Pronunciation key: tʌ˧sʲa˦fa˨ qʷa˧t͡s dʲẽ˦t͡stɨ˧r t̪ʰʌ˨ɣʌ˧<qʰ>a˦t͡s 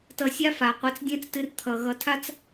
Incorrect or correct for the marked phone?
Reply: incorrect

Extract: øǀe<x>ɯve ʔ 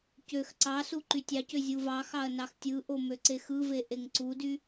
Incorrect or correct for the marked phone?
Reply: correct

